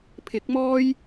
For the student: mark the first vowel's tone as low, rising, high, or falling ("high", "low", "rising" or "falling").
rising